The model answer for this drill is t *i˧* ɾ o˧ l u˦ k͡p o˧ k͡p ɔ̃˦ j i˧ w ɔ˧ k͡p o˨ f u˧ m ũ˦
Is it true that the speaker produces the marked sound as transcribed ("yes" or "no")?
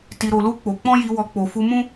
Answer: yes